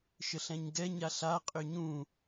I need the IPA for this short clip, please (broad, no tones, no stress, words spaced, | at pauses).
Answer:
ʃəɬɛ̃ɲɡɛ ɲaɬa qʼʏɲũ